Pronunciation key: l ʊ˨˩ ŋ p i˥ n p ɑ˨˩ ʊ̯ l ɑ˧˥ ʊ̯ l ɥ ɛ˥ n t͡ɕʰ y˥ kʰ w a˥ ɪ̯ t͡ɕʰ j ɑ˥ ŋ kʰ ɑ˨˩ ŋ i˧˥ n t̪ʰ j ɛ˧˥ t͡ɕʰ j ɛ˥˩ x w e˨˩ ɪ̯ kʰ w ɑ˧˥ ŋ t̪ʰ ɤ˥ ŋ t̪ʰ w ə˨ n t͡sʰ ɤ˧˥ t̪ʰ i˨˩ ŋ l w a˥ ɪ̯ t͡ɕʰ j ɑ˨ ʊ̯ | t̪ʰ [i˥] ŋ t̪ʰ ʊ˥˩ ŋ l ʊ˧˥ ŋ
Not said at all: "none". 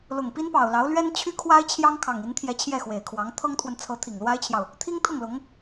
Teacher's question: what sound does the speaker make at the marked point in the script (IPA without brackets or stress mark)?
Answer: i˥